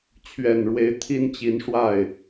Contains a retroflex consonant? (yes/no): yes